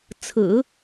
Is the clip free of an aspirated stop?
no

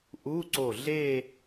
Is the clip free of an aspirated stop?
yes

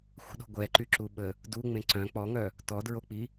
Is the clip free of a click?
no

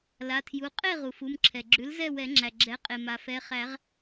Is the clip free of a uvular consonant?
no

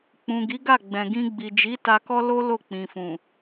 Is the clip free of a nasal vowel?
no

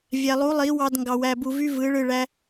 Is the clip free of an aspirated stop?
yes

